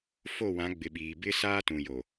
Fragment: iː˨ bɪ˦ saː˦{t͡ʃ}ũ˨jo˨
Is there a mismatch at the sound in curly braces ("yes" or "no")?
yes